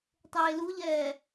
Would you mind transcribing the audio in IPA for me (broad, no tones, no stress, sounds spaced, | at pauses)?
tˤ eː l u ʎ ɛː